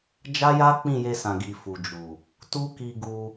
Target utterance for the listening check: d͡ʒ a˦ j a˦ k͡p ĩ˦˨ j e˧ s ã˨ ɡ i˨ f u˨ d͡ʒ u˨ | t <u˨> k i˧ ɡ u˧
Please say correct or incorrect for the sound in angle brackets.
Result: incorrect